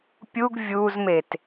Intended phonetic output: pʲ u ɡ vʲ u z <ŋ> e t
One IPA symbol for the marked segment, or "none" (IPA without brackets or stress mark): m